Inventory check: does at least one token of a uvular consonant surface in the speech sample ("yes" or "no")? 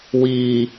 no